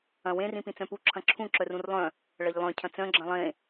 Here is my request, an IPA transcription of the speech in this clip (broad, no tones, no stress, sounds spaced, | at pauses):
ɐ̃ w ẽ r ĩ p ĩ t͡s œ̃ p u ǁʰ ɐ̃ ǁʰ ũ ǁ œ r ũ r lˠ œ̃ | ɭ ɐ ʎ lˠ œ̃ cʰ ɐ̃ t͡s œ̃ ɡ͡ǁ ɐ̃ lˠ ẽ